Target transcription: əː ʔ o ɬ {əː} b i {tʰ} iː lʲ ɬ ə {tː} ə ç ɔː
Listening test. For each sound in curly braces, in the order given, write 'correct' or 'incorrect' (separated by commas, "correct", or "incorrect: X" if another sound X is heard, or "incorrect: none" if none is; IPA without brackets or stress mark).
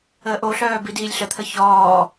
incorrect: œː, incorrect: d, incorrect: t̪ʰ